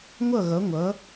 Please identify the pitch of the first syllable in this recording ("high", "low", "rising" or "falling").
falling